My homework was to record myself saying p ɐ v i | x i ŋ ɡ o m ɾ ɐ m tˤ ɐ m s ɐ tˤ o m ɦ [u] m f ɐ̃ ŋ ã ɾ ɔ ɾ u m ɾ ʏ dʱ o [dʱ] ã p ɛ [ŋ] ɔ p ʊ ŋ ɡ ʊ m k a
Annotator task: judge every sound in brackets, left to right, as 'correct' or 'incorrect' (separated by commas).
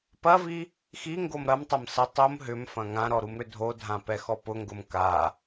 incorrect, correct, incorrect